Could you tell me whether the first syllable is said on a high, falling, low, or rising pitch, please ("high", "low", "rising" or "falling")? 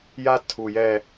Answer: high